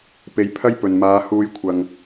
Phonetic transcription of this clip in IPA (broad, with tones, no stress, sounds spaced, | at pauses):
p e˨˧ j pʰ ɐ˥ j p ɵ˨ n m aː˨˧ h uː˧ j kʷʰ ɐ˨ ŋ